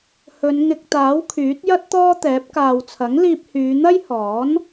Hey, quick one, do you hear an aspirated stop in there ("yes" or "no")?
yes